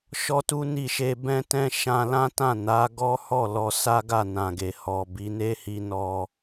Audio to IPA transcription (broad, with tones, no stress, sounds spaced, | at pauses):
ʃ ɔ˦ t u˦ n i˦˨ ʃ e˧ b ɛ̃˦ t ɛ̃˦ ʃ ã˧ l ã˦ t ã˦˨ n a˨˦ ɡ ɔ˦ h ɔ˦˨ l ɔ˧ s a˦ ɡ a˦˨ n ã˨ ɡ e˨ h ɔ˨ b i˨˦ n e˦ h i˦ n ɔ˧